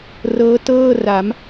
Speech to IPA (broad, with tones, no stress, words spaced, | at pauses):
rɤː˦˥tɤː˥˩ ra˩˦m